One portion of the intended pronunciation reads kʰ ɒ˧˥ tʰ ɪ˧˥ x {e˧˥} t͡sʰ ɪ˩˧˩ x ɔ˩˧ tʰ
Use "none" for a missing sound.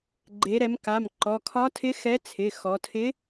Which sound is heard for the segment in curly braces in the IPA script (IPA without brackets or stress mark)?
ɛ˧˥